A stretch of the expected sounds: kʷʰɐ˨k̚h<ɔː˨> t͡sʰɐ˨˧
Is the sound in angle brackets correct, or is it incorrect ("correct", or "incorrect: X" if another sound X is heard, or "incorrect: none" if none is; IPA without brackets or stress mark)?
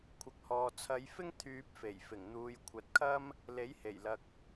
correct